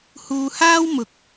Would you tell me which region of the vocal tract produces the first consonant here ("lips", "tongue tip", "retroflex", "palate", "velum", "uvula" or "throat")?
throat